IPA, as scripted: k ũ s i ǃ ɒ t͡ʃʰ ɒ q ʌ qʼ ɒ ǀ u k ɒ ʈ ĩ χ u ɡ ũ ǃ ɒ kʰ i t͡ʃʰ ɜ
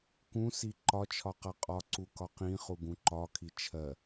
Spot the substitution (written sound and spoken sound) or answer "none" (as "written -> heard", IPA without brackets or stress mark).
ʈ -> q